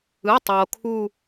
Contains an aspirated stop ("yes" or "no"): yes